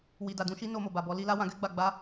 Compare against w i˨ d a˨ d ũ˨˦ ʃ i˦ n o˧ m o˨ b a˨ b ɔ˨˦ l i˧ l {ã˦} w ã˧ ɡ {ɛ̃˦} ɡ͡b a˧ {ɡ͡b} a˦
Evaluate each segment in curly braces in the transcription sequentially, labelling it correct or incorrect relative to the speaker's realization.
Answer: incorrect, incorrect, correct

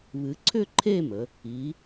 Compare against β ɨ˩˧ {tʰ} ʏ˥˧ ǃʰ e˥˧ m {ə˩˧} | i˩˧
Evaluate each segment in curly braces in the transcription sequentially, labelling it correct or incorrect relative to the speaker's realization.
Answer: incorrect, correct

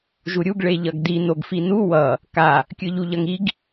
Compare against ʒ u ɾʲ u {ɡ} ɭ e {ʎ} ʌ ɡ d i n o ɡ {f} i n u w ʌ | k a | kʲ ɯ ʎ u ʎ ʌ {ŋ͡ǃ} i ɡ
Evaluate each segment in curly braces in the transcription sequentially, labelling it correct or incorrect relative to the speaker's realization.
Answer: correct, correct, correct, incorrect

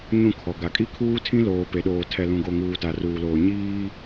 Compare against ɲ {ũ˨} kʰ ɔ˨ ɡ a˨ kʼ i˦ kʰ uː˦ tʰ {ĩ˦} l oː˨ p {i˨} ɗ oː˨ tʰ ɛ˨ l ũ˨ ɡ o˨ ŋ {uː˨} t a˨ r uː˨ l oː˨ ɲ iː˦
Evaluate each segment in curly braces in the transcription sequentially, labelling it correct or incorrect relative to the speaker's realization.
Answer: incorrect, correct, incorrect, correct

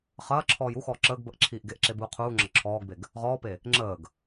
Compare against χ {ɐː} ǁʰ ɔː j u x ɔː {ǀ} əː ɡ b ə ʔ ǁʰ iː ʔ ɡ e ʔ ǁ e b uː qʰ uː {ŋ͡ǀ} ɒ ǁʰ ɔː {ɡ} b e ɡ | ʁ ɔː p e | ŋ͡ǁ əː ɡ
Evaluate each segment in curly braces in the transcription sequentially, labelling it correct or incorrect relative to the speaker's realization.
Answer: correct, incorrect, incorrect, correct

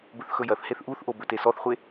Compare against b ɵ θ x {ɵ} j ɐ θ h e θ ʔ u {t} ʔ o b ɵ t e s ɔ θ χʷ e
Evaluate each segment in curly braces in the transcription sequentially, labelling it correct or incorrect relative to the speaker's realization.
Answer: correct, incorrect

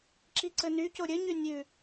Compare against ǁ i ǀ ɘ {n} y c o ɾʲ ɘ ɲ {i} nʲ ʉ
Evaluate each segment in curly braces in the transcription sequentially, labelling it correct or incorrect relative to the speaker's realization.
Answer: correct, incorrect

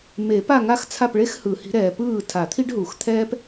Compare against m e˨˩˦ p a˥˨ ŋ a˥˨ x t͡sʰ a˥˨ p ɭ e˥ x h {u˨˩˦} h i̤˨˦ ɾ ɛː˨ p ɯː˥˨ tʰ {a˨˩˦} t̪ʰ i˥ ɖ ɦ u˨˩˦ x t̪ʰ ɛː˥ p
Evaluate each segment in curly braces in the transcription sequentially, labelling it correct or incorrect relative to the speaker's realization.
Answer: incorrect, correct

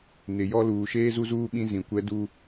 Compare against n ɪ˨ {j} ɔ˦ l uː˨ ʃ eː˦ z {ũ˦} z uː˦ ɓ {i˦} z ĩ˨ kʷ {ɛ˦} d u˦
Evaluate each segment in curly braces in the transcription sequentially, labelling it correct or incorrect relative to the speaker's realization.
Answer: correct, incorrect, incorrect, correct

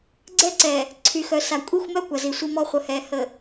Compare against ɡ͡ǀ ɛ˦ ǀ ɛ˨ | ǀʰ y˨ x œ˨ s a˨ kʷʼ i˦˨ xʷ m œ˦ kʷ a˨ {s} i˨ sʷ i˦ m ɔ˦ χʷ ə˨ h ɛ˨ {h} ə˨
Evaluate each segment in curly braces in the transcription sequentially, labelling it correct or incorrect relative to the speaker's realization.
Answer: incorrect, correct

